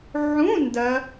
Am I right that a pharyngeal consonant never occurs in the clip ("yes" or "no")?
no